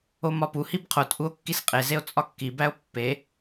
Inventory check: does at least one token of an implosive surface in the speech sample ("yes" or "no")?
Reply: no